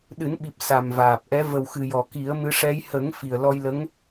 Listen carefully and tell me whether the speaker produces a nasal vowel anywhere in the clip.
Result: no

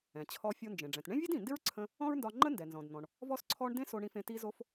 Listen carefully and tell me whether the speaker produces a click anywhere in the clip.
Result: yes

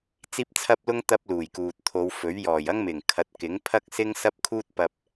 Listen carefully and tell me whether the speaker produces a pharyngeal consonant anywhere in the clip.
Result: no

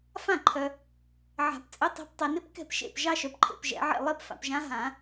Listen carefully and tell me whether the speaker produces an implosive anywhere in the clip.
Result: no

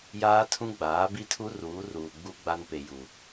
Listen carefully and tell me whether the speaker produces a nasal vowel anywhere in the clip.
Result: yes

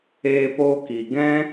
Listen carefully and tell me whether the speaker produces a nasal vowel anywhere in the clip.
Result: yes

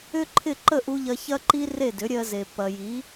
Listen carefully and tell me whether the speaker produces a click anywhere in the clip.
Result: yes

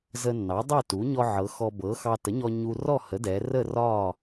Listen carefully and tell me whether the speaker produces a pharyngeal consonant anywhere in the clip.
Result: yes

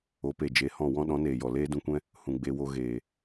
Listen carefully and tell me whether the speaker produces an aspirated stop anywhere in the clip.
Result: no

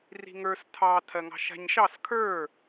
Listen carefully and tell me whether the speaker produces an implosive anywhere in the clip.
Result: no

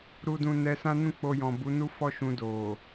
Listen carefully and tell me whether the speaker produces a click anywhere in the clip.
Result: no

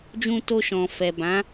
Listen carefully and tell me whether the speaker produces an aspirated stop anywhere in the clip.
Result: no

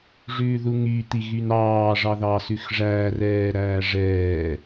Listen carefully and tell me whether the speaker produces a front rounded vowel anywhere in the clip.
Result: yes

